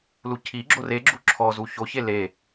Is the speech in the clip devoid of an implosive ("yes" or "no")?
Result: yes